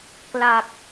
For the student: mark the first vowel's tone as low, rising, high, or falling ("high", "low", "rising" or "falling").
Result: low